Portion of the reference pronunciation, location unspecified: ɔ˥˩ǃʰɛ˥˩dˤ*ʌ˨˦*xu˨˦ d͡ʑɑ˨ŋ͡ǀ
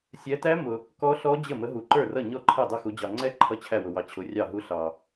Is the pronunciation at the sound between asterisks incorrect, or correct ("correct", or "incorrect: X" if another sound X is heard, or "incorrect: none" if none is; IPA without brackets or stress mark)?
incorrect: ʌ˥˩